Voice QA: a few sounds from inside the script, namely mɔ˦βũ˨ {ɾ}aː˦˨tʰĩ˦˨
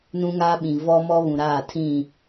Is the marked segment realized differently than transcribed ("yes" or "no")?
no